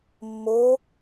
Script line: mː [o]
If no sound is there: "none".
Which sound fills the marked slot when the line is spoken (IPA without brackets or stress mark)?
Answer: o